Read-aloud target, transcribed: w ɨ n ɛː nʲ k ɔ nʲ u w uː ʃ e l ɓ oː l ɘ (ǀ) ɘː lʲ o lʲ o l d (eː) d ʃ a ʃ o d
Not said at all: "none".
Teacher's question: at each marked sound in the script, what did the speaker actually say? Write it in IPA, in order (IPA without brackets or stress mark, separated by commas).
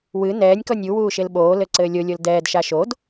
ǀ, ɛː